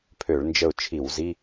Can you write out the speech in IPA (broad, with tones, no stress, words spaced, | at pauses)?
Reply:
pʰø˧˩˧ɭnd͡ʒə˦˨ʊ̯t͡ʃʰi˧˩˧wzi˧˥˧